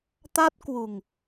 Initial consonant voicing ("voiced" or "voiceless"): voiceless